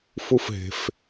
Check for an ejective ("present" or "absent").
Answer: absent